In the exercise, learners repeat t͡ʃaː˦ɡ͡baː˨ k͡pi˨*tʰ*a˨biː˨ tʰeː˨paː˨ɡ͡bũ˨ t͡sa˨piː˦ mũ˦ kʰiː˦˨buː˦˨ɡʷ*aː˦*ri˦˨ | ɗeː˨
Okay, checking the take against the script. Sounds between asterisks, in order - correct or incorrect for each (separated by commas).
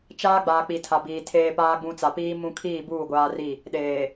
correct, correct